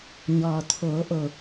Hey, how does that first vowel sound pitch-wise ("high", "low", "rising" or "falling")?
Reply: low